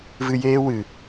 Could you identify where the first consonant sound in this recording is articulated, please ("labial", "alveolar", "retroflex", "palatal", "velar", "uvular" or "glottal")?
labial